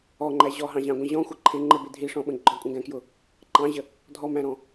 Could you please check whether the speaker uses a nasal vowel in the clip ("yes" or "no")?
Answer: yes